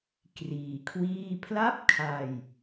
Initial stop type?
plain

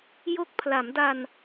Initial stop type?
plain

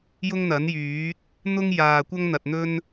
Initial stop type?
plain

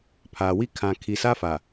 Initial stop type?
aspirated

